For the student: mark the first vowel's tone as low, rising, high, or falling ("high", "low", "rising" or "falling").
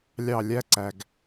falling